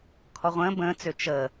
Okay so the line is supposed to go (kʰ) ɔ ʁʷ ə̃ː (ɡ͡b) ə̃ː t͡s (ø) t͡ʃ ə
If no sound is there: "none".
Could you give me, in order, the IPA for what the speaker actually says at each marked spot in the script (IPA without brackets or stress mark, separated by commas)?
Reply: kʰ, b, ø